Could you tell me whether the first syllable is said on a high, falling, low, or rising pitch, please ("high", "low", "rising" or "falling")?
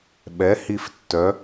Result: rising